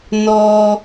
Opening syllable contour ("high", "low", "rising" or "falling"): low